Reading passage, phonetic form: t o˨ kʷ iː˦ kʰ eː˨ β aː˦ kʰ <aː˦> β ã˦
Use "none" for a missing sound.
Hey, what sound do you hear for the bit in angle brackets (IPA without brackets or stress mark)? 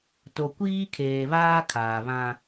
aː˨